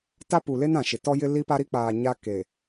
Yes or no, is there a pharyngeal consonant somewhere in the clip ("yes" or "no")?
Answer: no